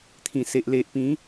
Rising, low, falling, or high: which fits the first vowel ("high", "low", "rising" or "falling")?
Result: low